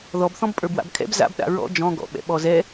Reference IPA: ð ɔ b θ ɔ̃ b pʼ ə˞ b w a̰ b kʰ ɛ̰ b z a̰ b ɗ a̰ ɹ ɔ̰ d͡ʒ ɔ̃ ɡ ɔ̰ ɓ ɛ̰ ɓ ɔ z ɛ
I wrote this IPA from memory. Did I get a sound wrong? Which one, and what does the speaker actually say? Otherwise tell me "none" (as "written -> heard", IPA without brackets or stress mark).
none